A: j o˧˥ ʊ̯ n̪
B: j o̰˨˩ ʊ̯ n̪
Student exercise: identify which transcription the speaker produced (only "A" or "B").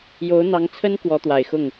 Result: A